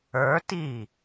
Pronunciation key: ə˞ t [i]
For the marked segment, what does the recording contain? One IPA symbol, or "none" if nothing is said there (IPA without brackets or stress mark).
i